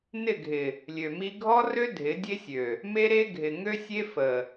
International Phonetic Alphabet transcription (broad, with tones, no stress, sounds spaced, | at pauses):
n ɪ˦˨ ɡʱ ɪ˨ | lʲ ø˨ m i˦ ɡʱ ɔ˦ r ø˦ dʱ ɪ˨˦ dʲ e˦ sʲ ø˨ | m e˦ ɾ e˦ ɡʱ ɪ˨ ŋ ø˦ sʲ e˦ f ə˨